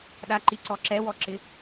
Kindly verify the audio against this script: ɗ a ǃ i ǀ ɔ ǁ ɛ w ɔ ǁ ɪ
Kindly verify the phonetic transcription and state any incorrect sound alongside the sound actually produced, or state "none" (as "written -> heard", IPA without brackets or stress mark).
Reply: none